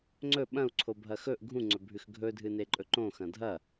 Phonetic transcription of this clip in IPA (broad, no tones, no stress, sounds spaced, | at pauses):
ŋ͡ǀ ɵ ɓ ɐ̃ u̯ ǀʰ o bʱ ɐ x ɵ ʔ ɡʱ ũ ŋ͡ǀ ɵ bʱ ʉ x ɡʱ ɵ dʱ ɨ n e ǃʼ ɵ ǃ õ x ɐ̃ dʱ ɐ